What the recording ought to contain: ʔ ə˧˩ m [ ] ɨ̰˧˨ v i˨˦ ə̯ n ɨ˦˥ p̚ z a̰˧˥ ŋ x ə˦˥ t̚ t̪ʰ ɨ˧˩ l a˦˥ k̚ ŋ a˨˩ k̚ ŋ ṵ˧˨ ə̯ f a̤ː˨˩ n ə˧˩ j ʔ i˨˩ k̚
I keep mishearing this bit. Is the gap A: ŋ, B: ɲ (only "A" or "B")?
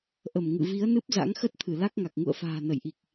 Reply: A